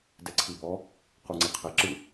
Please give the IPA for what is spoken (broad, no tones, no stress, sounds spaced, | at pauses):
d ɛ ǀʰ i b ɔ | q u ŋ͡ǀ e qʰ e ǁ ɯ